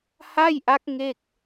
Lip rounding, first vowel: unrounded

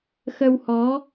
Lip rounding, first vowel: unrounded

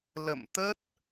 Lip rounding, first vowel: unrounded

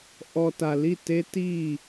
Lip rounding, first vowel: rounded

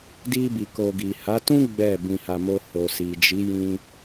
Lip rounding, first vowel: unrounded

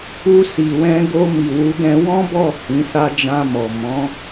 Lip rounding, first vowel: rounded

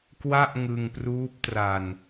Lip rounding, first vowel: unrounded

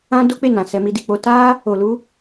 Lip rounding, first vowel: unrounded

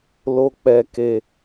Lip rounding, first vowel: rounded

